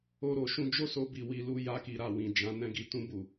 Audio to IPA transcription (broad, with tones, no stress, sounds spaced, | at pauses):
o˧ ɾ o˨ ʃ ũ˧ d͡ʒ o˦ s o˧ b i˨ w i˧ l u˧ j a˧ k i˨ ɾ a˨ w ĩ˨ d͡ʒ ã˨˦ n ɛ̃˧ ɡ i˨ t ũ˧ b u˨